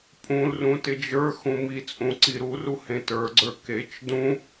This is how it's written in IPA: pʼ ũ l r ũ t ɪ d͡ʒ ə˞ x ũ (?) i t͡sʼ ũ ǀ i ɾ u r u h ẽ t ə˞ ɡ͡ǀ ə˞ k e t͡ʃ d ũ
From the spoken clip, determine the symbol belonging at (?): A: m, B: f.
A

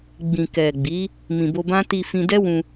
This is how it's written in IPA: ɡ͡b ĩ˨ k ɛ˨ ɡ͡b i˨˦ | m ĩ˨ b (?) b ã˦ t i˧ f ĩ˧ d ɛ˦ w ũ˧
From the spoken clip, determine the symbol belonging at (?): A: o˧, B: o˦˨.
A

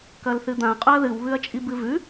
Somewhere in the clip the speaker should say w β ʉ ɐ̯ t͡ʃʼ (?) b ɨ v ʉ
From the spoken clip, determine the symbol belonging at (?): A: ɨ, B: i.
B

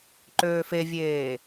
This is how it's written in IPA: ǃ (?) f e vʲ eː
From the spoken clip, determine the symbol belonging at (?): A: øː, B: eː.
A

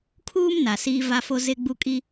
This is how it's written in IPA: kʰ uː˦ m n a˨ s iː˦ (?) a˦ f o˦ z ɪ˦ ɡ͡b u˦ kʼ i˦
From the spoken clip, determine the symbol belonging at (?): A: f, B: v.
B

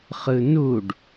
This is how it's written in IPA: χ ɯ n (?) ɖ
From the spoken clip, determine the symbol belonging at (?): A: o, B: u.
B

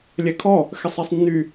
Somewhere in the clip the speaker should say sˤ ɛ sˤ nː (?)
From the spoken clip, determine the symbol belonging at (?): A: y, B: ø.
A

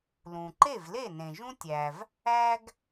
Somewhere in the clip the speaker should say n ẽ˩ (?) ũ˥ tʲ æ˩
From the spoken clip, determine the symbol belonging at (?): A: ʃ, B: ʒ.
B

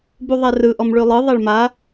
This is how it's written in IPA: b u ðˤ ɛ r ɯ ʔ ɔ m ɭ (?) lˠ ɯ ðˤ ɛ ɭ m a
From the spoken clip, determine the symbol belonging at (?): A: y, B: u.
A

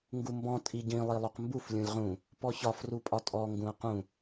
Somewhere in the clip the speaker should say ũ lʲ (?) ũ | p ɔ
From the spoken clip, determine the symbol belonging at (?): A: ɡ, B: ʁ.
B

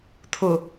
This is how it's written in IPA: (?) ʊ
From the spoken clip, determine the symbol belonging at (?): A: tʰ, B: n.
A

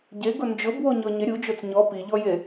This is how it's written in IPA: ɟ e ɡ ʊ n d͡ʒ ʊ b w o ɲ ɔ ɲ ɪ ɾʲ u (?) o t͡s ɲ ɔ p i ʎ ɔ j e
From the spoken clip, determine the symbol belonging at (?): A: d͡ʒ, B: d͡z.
A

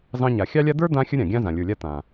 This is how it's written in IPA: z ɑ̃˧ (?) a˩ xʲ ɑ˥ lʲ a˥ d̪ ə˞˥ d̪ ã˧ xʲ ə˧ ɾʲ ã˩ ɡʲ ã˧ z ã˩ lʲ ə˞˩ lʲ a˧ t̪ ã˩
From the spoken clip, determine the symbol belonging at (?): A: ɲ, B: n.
A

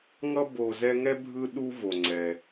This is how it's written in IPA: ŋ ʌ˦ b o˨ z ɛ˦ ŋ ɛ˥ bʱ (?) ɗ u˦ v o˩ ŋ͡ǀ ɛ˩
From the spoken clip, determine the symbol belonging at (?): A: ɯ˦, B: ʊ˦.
A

